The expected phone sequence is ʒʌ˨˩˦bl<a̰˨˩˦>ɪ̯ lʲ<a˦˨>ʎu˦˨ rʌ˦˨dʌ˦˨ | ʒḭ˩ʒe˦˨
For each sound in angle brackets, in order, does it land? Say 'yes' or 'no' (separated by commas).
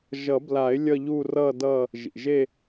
no, no